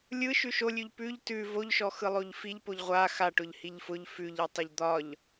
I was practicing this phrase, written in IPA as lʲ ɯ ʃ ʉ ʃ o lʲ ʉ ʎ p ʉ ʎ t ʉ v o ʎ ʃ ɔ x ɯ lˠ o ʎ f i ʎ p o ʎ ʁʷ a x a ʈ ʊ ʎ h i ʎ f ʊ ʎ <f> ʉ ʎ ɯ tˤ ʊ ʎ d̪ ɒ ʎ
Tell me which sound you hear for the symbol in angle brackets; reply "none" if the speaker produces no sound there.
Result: f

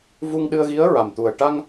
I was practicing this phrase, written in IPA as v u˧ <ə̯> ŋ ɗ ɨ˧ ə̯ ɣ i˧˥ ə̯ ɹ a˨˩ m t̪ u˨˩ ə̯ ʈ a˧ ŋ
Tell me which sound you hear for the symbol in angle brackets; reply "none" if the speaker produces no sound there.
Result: none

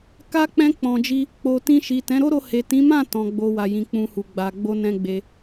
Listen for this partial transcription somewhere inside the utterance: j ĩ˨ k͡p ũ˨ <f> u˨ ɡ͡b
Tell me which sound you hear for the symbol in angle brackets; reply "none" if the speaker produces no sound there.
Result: h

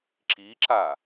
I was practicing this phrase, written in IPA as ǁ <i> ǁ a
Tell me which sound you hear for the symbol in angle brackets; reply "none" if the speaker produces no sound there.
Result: i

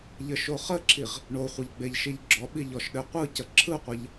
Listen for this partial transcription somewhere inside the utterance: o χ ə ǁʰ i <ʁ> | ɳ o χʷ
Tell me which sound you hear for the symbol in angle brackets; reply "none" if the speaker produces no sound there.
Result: ʁ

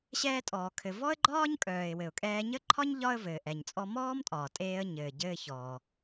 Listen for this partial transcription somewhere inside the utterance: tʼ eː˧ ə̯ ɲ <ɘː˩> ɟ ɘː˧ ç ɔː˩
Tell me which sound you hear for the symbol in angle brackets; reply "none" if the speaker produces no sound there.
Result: ɘː˩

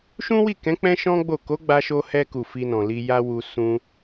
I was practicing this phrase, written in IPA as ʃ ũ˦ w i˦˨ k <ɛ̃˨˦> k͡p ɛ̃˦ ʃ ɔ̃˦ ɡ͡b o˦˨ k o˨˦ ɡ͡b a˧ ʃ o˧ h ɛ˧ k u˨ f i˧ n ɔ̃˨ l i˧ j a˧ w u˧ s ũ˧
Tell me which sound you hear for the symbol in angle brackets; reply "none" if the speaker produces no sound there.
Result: ɛ̃˨˦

